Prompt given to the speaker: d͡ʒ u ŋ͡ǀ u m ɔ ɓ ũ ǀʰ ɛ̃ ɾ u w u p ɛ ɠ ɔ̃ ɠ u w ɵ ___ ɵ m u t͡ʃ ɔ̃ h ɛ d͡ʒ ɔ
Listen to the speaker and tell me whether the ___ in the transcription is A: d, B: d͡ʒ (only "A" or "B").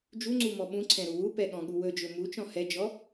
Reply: B